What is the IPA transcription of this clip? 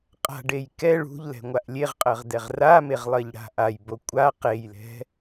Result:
qʼ a̤ ɖ e j k ɛ ɭ ṳ ʎ l ɛ̤ ŋʷ a ʔ lʲ e ʁ qʼ ɜ ʁ d ɛ ʁ r a m e ʁ lˠ ɜ ʎ ɽ a̤ ʔ a j b o kʷʼ a q e j l ɛ̤

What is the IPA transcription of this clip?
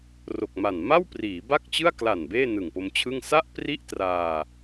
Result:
r o˨˩ k̚ m a˨˩ n m a˥˩ w p r iː˩˦ b a˥˩ k̚ t͡ɕ ɯ˥˩ a̯ k l a˨˩ n b eː˥˩ n ɯ˨˩ ŋ p o˧ m t͡ɕʰ ɯ˥˩ ŋ s a˥˩ ʔ p r i˥˩ ʔ t r aː˧

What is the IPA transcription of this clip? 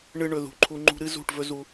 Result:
ɳ ɨ˧ ɳ ɵ˨ ð ṳ˨ ǃʰ u˧ ŋ͡ǃ ṳ˦ ɾ ɨ˦ z ṳ˦˨ ʈ v ɵ˦ z u˧

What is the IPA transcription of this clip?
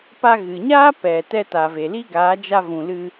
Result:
p a˧ ɣ ɨ˨ ɲ aː˦ p ɛ˨ t ɛ˧ t a˨ v e˨ l i˦ ɡ aː˨˦ d͡ʒ a˧ v ũ˨ l ɨ˧

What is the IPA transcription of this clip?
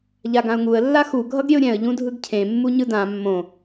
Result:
ʎ a ɡ ã ʊ̯ ŋ u ə̯ lː a x u ɡʱ ʌ ɡ ɾʲ e ʊ̯ ɾʲ ɛ̃ ə̯ ʎ ũ dʱ ɯ ɡ cʰ ẽ mː u ɲ ɯ d ã mː õ

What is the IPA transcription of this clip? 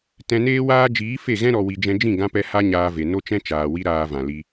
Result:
t ɛ̃˧ n eː˦ w aː˦ d͡ʒ iː˨˦ f e˦˨ ɣ ɛ̃˦ ɾ ɔ˨ w i˨ d͡ʒ ɛ̃˧ d͡ʒ ĩ˦˨ ɡ ã˧ p ɛ˧ h a˦ ɲ aː˧ v e˨ n o˦ t͡ʃ ɛ̃˦ t͡ʃ aː˨ w i˦ ɾ aː˧ v ã˨ l i˧

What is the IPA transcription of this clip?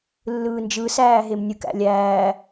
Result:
lː ɯː n d͡ʒ ɯ s æː ɦ e m nʲ ɯ k æ̰ lʲ æː

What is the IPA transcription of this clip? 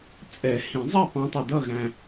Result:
t͡sʼ ɛ˨˩˦ h ĩ˨˩˦ zˤ ɛ˥˨ p ɑ̃˧˥ tˤ ʊ˨ d ʌ˥˨ ɣ æ̃˨

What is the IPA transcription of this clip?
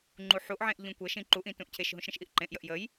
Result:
ŋ͡ǃ u ħ u ʔ ʕ ẽ ʔ ʎ ũ kʷ ə ʃ ĩ ǃ u ʔ ĩ t ũ ʔ cʰ e ʃ ɦ ũ ʃ ɾ ə̃ ʃ ʔ i ʔ ǃ ẽ ʔ j ə ʔ j ə j

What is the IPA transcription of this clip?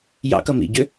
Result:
j ɑ̰ k ʌ m ḭ ɟ ʏ

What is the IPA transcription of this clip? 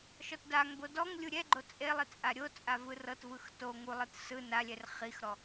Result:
ʃ ɔ t d a ŋ b o d ɔ ŋ lʲ u ɾʲ ɛ ɡ͡ǃ o t͡sʼ e lˠ i t͡sʼ a ɾʲ o t͡sʼ a v ɯ r ɤ t v ɯ x t o ŋ u lˠ ɯ t s ɯ n a lʲ ɛ r χ i x ɾ ɔ

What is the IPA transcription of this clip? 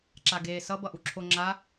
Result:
ǁ a ɡ eː s ʌ b ʌ ʔ u ǁʰ o ŋ͡ǁ a

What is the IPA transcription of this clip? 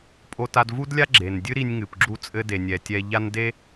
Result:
pʼ o˧ t a˧ d v u˥ d lʲ a˥ ɡ͡ǁ e˩ n dʲ ɨ˥ ɾ i˧ nʲ ŋ ɨ˩ p ɡ͡ǁ u˧ t͡sʼ ɘ˧ d e˩ nʲ ɛ˩ tʲ ɛ˧ ʎ a˥ n d e˥

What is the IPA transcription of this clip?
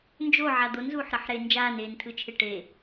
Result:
n d͡ʒ o ʕ a d̪ o n z uː ħ ɾ ʌ ħ ɾ eː n d͡ʒ aː n eː n tʰ ɯ t͡ʃʰ e ʈ e

